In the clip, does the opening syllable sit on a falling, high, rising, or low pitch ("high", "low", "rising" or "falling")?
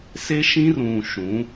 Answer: high